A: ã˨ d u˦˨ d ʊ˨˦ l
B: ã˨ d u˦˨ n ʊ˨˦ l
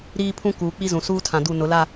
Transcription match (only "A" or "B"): B